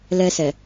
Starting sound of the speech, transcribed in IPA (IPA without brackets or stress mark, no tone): l